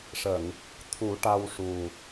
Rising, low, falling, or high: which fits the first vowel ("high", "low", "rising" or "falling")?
low